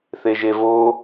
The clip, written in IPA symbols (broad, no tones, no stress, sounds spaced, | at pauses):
θ e ʒ e v o